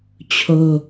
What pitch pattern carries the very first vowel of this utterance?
high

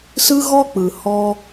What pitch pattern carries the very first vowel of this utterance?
high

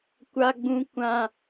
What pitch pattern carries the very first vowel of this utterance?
high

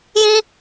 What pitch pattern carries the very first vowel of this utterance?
high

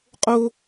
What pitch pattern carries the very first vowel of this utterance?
high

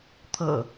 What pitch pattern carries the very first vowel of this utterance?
low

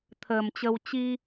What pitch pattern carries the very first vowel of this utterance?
low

